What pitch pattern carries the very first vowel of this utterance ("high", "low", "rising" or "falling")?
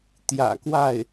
low